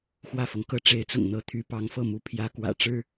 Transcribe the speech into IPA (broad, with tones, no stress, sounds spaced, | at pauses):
x w ä˥˩ f ɤ˩ ŋ k ɤ˥˩ ʈ͡ʂ e˧˥ ɪ̯ t͡s ʊ̰˨˩ ŋ n̪ ɤ˧˥ t̪ʰ y˧˥ p ɑ˧˥ ŋ f ɤ˥˩ m u˥ pʰ j ä˧˥ k w ä̰˨˩ ʈ͡ʂ ɻ̩˥